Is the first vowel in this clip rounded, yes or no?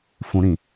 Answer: yes